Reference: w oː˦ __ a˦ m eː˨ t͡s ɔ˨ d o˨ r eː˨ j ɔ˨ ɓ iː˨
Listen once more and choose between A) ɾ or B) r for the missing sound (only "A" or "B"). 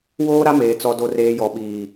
A